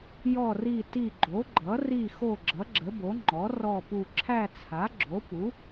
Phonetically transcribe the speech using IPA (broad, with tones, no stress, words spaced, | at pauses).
jɔ˦˨ri˦˨ti˦˨ ɡ͡ǃo˩˥ɡ͡ǃʌ˩˥ ri˦˨xo˦˨ ɡ͡ǁʌ˩˥ɡ͡ǁə˩˥bo˩˥ ŋ͡ǃɔ˩˥ rɔ˦˨pu˦˨ ǁʰæ˦˨t͡sʰa˩˥ɡ͡ǁo˩˥pu˩˥